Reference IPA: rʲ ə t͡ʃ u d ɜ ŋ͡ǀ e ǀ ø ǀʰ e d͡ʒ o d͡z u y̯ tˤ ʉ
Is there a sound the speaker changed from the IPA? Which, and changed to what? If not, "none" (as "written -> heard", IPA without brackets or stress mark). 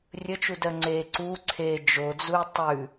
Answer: ø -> u